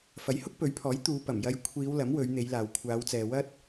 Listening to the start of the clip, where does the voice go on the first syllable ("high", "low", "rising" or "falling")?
rising